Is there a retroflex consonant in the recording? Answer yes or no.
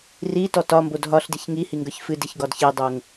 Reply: no